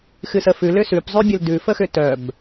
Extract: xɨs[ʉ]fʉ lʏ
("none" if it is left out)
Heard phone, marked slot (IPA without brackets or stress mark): ə